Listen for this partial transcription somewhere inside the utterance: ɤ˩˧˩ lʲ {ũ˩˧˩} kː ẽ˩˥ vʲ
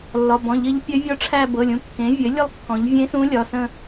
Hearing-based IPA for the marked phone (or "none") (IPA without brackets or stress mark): ũ˩˧˩